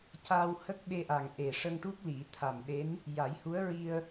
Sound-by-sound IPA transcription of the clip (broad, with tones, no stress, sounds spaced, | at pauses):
c a˧ w h ə˦˥ k̚ ɓ e˧ ʔ a˨˩ ŋ ʔ e˨˩ ʂ ə˧ ŋ ʈ u˦˥ k̚ l i˨˩˦ t̪ʰ a˨˩ m ɗ e˧˥ n | j a˨˩˦ j h u˧˥ ə̯ ɹ i˧ ə̯